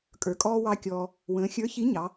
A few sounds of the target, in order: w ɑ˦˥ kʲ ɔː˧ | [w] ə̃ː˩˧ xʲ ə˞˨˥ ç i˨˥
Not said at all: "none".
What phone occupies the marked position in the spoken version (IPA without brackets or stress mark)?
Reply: w